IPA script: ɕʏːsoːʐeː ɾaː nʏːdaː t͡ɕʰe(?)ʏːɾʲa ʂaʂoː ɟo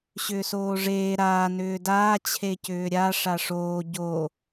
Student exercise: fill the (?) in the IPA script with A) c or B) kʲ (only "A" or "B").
A